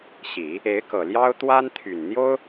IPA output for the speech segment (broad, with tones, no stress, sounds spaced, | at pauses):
ɕ i˨˩˦ | e˧˥ ɪ̯ k ɤ˨˩ l j ɑ˥ ʊ̯ t̪ w a˥ n t̪ʰ y˨˩ n n̪ j o˥ ʊ̯